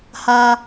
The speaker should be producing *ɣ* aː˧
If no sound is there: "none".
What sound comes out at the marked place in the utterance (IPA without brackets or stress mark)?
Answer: h